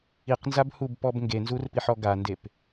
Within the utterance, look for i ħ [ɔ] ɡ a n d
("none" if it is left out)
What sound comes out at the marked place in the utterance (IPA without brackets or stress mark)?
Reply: ɔ